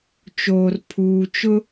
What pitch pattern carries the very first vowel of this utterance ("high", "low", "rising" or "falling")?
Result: low